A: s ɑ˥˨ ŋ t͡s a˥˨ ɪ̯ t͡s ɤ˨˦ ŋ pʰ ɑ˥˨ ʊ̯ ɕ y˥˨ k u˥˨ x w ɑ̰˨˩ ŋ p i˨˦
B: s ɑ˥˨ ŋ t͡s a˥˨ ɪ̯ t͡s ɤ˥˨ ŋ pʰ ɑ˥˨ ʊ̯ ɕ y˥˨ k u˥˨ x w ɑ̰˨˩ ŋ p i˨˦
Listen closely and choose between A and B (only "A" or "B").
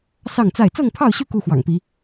B